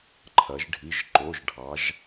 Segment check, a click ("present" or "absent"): present